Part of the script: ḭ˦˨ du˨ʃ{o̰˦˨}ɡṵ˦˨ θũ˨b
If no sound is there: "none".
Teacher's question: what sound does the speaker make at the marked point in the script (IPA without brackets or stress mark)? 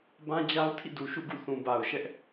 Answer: ṵ˦˨